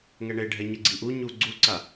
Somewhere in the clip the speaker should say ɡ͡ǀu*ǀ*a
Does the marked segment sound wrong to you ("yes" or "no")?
no